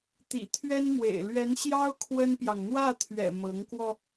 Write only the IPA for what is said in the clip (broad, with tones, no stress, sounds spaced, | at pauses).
t̪ ḭ˨˩ t̪ʰ ɥ ɛ˥ n m w ḛ˨˩ ɪ̯ l ɥ ɛ˧˥ n ɕ j ɑ˥ ʊ̯ kʰ w ə˥ n p j ɑ˨ ŋ n̪ w ä˥˩ t̪ʰ ɥ ɛ̰˨˩ m ɤ˧˥ ŋ k w ɔ˧